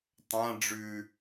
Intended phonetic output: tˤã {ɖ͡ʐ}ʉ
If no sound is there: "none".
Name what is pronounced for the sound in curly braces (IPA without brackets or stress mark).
ɖ͡ʐ